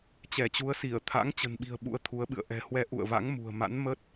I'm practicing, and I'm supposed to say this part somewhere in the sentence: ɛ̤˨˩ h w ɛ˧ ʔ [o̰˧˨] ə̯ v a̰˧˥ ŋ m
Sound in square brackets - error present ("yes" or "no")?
yes